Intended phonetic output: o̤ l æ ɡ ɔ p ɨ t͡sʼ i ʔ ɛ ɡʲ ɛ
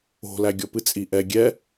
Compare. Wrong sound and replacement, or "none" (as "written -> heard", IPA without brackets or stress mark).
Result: ɡ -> ɡʲ